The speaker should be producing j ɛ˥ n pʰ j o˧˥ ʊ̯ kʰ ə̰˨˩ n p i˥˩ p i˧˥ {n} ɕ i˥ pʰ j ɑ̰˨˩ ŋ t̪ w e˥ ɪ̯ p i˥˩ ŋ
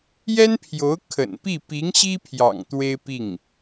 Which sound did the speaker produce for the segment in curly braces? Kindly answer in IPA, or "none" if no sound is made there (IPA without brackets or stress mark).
ŋ